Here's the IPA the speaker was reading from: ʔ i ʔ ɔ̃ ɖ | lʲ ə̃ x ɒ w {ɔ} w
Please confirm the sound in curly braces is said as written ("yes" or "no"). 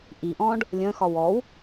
yes